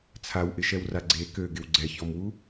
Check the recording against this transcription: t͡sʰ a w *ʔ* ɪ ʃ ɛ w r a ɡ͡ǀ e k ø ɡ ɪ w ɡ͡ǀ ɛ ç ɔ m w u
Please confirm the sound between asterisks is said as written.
yes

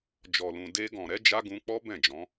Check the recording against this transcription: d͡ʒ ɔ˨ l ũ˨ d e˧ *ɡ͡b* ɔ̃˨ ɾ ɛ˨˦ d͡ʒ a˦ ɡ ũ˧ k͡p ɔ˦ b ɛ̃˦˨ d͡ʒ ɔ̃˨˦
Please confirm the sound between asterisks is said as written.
no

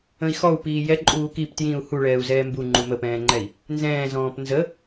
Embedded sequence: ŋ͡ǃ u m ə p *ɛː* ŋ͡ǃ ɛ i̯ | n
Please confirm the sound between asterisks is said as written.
no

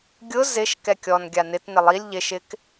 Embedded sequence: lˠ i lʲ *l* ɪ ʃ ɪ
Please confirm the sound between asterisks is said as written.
no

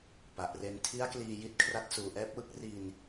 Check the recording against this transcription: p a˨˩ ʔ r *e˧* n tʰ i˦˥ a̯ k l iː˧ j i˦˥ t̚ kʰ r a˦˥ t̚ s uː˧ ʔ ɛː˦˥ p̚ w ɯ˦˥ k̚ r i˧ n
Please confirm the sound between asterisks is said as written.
yes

